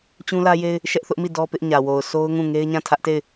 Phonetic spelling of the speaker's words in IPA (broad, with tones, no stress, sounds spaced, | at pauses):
t͡ɕ ũ˦ l ä˦ j e˦ ɪ̯ | ʃ ɛ˦ ʔ θ ʊ˦ ʔ m i˦˨ d ɔ˦ p ɪ˦ ʔ ɲ ä˨ w o˨ ʊ̯ sʰ o˦ ʊ̯ ŋ ũ˦˨ ŋ e˦ ɪ̯ ɲ ã˦˨ tʰ ä˦ ʔ t e˦˨ ɪ̯